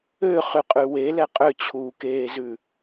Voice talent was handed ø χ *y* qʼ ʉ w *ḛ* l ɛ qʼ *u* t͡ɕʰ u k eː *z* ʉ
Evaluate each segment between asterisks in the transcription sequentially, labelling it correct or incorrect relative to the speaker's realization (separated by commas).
correct, incorrect, incorrect, correct